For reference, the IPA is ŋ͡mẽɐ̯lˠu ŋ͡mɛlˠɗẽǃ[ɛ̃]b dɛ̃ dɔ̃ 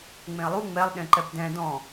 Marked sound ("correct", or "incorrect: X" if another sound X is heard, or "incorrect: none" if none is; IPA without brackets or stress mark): incorrect: ɛ